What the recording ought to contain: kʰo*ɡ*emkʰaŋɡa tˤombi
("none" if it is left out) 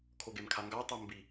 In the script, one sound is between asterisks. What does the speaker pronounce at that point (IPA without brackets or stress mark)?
ɡ